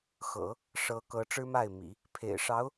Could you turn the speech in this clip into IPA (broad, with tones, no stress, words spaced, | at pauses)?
xɤ̰˨˩˦ | ʂɤ˧˥ kɤ˧˥ ʈ͡ʂɻ̩˥ma˥˩ɪ̯mḭ˨˩˦ | pʰḛ˨˩ɪ̯ ʂɑ˧˥ʊ̯